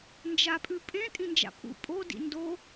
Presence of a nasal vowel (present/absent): present